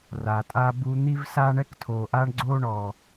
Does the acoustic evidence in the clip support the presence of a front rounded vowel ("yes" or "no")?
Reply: no